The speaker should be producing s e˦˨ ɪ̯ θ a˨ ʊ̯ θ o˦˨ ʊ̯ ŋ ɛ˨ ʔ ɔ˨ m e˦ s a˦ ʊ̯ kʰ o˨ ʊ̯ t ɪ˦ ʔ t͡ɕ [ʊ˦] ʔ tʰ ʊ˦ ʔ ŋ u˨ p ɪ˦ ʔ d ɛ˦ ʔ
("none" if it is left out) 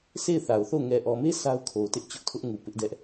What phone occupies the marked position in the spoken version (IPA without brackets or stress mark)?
ʊ˦